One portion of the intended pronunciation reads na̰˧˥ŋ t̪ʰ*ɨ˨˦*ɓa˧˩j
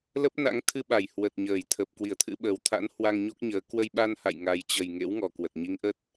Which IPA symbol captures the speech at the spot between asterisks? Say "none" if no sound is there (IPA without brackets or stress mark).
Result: ɨ˧